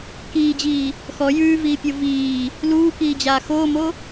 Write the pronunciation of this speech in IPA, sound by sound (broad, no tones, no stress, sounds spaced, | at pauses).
k iː d͡ʑ iː | x ɔ j ʉː v iː pʲ o v iː | l uː k iː d͡ʑ aː x oː m o